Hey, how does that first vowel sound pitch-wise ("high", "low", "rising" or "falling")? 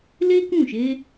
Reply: high